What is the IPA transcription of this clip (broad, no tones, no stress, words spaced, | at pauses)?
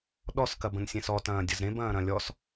ɗɔskɐbə̃n sʲẽsɔtɐ̃ː dʲɐzɾẽbɐ̃ː ɾɐ̃lʲɔs